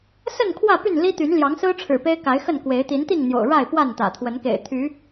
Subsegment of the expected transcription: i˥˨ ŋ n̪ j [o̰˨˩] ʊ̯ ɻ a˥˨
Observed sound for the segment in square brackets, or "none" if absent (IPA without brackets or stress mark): o̰˨˩